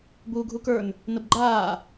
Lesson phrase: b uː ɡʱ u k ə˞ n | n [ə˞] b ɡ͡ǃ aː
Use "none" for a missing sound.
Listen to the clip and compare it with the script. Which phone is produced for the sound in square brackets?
ə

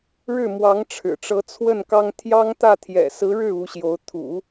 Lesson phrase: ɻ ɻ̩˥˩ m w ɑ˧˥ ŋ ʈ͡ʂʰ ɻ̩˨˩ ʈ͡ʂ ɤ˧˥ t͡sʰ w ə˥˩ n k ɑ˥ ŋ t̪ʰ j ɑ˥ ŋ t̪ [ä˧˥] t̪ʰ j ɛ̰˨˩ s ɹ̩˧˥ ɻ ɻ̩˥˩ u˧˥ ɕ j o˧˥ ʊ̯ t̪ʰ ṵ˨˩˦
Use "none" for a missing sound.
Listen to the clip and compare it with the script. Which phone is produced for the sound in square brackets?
ä˥˩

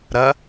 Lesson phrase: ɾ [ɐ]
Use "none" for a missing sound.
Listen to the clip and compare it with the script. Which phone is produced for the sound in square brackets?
ɐ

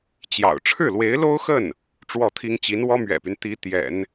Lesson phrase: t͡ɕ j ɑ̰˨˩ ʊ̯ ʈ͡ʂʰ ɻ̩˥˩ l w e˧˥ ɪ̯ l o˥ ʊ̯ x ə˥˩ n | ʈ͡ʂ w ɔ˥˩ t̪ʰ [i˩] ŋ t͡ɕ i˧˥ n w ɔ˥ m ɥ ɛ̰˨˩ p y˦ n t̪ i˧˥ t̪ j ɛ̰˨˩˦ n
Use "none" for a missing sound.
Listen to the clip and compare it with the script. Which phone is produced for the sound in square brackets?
i˥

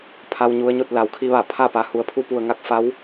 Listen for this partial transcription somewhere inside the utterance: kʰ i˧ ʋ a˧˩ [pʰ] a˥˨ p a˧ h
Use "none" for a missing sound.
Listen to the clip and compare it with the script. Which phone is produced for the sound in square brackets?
pʰ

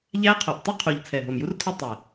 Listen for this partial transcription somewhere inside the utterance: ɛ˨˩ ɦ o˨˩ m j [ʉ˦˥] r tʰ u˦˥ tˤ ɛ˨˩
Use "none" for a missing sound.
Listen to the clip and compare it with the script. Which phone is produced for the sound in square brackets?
u˦˥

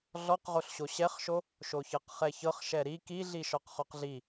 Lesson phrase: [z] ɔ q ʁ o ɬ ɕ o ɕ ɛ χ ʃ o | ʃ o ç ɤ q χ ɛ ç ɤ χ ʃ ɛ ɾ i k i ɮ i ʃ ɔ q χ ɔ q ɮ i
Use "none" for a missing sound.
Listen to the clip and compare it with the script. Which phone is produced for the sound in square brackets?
ɮ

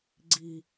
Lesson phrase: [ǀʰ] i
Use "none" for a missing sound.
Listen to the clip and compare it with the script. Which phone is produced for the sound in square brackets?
ɡ͡ǀ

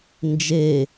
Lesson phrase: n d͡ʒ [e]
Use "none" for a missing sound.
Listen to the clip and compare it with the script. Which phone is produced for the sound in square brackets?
e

